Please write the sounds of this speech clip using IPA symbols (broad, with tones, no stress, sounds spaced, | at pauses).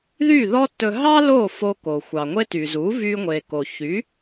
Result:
ð y˥˩ ð ɔ˥ t ɵ˧ ɦ ɑ˥ l o˥˩ f o˧ k o˩ xʷ ɑ˩ ŋʷ e˥ t y˩ z u˩˥ v y˧ ŋʷ e˩ k o˩ ç y˩˥